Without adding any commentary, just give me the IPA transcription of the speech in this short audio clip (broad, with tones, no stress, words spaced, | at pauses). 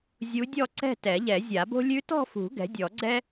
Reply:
zʲu˧˥dʲɔ˥˧ǀɛ̤˥˧ tɛ˨˩˦ʎɛ˨˩˦zʲa˨˩˦bo̤˥ lʲʉ˧˥tɔ̤˥˧fṳ˨˩˦ ɡɛ̤˩˥dʲɔ˨˩˦ɡ͡ǀɛ˥